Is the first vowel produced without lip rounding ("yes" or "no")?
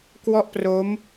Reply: no